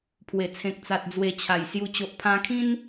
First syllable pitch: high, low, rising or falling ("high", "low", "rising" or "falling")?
low